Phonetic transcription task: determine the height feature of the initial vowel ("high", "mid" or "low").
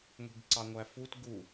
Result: high